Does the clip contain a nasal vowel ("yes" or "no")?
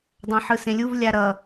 yes